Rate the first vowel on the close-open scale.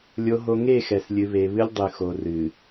mid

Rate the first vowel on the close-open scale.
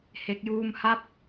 mid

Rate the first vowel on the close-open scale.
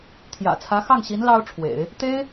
open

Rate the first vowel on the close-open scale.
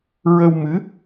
mid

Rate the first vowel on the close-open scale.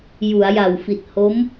close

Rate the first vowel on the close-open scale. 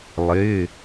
close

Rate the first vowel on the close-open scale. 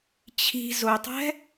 close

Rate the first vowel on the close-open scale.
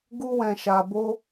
close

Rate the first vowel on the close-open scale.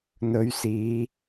mid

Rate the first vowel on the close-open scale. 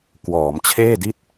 mid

